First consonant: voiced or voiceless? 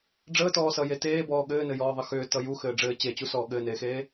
voiced